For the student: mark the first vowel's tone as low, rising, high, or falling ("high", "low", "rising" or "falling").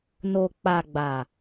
low